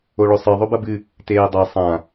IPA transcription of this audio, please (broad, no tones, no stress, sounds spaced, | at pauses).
o ɭ ɵ sˤ ɨ ðˤ ɵ b ɐ b ɨ | t eː dˤ e sˤ ã